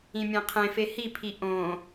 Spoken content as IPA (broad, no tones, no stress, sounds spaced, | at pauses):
ĩ mʲ ẽ qʰ ẽ f e h i pʰ i ʔ õ